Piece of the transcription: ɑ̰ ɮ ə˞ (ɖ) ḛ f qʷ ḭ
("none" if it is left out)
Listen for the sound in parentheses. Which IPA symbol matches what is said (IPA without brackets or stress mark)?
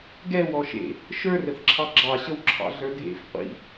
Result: dʱ